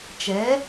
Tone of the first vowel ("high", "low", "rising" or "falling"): rising